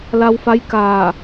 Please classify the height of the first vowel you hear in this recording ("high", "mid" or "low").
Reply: low